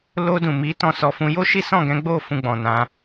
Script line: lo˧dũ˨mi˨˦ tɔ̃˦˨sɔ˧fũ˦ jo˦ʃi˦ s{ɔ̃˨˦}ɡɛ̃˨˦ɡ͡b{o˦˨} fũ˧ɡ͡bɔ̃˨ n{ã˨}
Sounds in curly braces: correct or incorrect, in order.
incorrect: ɔ̃˦˨, correct, incorrect: ã˧

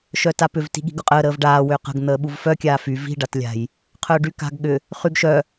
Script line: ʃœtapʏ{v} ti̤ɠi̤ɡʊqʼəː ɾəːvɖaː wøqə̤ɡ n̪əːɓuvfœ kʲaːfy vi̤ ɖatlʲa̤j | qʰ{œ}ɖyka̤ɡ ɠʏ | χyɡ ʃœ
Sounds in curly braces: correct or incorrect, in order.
correct, incorrect: œː

